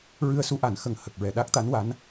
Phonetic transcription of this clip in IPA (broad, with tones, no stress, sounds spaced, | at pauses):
ɹ ɨ˧ ə̯ s u˧˥ ʔ a˨˩˦ n x ə˨˩ ŋ h ə˨˩ k̚ ɹ ɛ˨˩ ɗ a˦˥ k̚ t̪ a˧˥ n w a˧˥ n